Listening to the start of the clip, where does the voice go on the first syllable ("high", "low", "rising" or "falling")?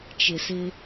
low